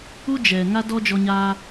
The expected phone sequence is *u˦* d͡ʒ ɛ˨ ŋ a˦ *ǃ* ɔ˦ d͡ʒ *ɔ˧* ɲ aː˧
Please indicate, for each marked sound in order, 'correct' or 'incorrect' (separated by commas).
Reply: correct, incorrect, correct